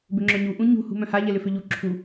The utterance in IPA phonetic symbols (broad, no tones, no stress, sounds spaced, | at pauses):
b ʏ ŋ͡ǁ œ ɲ u ʔ ũ ɲ ṳ h ṳ m œ̃ h a ʎ ɛ l ʏ f ʏ ʎ u ǁʰ u